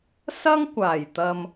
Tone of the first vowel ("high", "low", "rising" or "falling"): high